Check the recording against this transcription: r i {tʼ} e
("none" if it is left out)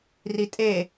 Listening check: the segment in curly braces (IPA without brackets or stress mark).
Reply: tʼ